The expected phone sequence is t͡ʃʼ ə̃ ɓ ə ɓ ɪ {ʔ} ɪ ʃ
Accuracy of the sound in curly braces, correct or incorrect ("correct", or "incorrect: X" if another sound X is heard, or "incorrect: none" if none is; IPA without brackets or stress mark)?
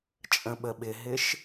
incorrect: ɦ